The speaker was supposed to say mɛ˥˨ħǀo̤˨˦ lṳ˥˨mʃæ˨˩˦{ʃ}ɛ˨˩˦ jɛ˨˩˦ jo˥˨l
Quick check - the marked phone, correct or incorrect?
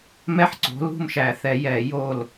incorrect